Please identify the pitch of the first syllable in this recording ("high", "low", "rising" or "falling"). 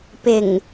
low